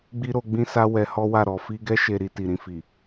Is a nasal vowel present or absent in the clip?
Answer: present